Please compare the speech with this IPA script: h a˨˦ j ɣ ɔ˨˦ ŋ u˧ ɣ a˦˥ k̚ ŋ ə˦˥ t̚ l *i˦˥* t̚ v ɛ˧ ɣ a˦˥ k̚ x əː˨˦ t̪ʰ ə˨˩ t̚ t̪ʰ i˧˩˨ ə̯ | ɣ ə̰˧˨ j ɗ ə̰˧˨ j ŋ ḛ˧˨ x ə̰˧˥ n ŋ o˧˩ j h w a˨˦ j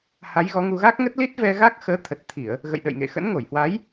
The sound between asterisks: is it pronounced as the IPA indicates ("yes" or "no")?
yes